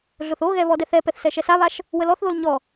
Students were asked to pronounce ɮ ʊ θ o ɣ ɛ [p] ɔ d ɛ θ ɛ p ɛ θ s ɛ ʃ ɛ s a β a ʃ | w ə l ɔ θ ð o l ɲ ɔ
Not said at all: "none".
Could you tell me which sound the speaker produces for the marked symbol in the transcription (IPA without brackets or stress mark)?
β